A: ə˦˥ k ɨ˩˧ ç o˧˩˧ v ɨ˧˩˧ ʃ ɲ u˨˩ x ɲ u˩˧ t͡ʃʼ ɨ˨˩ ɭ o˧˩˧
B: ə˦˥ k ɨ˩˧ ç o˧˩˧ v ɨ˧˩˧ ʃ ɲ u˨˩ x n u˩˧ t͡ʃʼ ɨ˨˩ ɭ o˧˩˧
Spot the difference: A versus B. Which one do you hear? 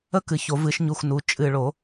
B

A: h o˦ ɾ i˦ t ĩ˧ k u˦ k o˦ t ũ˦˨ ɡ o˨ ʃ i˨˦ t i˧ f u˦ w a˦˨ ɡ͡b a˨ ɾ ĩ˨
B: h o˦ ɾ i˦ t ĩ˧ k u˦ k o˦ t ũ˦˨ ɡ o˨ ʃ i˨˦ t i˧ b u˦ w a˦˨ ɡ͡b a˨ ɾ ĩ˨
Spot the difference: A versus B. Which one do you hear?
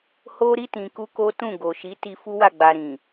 A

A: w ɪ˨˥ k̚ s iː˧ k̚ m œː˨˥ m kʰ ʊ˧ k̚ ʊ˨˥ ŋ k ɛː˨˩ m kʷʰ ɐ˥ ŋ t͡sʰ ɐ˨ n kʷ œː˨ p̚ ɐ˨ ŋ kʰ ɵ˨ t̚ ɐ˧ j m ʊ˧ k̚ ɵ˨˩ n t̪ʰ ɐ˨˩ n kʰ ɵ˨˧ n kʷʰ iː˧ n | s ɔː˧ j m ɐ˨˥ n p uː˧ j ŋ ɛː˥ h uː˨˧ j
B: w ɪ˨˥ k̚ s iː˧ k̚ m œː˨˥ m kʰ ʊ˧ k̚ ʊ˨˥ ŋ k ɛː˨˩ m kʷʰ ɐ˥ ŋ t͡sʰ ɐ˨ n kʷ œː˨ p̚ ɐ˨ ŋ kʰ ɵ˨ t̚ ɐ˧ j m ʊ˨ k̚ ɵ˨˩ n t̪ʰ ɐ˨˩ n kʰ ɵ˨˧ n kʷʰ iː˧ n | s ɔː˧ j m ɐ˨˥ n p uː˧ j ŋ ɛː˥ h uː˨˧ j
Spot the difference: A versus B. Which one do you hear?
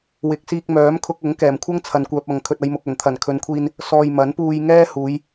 B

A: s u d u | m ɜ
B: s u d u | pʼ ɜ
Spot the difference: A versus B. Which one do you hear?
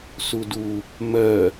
A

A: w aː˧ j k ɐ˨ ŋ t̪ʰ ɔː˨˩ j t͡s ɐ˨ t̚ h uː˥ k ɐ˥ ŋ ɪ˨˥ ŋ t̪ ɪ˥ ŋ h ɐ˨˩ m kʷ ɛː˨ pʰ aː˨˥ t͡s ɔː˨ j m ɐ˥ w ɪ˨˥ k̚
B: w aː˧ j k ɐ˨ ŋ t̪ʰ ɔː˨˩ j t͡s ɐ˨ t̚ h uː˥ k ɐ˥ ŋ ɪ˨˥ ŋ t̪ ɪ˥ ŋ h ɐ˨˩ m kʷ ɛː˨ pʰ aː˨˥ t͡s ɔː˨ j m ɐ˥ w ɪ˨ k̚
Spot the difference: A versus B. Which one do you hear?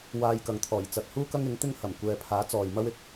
A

